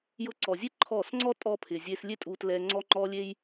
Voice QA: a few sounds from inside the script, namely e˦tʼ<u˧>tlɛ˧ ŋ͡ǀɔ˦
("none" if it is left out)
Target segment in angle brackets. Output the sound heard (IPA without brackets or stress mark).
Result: u˧